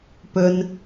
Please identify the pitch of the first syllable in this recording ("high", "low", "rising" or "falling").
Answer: low